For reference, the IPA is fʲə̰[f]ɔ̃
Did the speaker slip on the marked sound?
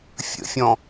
yes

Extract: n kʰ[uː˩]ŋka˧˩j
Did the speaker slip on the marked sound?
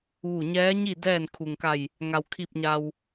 yes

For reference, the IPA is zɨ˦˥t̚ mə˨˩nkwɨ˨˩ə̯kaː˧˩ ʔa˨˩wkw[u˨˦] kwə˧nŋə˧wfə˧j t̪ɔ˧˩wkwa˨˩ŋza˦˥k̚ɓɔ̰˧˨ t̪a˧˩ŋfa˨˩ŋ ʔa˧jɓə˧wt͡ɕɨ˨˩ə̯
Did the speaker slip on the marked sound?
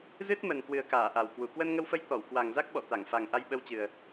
yes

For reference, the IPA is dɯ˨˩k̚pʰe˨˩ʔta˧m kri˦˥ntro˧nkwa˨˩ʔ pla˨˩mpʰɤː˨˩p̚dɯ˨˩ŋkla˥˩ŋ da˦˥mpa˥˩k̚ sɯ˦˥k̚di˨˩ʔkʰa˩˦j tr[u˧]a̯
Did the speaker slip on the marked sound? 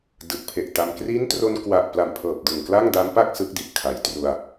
no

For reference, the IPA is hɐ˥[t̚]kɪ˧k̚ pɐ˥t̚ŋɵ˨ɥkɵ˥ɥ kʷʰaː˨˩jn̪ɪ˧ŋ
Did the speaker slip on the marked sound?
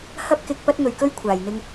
yes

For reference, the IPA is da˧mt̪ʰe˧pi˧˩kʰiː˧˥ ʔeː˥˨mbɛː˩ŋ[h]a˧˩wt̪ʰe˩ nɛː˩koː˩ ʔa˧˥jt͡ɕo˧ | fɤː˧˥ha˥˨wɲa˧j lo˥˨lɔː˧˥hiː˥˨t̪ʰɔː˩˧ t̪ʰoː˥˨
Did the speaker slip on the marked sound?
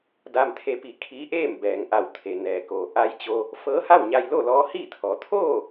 yes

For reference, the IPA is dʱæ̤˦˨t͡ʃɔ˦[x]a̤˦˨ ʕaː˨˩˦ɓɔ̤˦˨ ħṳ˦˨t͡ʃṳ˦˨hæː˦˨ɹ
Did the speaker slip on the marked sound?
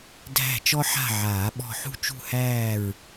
yes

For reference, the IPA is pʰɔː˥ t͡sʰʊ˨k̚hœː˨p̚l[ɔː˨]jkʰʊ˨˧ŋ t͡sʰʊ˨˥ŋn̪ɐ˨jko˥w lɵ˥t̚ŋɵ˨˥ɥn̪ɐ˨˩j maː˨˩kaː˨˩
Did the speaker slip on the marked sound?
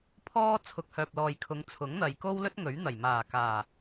no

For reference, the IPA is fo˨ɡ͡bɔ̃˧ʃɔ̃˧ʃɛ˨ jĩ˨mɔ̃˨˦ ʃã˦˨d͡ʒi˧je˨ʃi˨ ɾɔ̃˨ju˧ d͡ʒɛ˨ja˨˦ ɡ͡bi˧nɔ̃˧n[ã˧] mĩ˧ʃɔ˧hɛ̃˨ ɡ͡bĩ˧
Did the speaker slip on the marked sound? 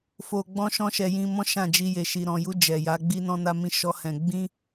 yes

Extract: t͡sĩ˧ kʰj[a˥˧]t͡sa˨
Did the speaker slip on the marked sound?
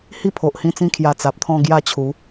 yes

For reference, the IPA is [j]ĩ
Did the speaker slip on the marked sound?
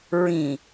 yes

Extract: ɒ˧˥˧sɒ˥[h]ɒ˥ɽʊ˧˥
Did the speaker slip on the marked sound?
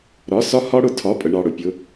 no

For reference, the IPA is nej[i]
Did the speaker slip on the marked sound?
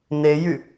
yes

